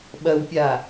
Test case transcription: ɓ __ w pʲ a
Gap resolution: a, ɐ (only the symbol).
ɐ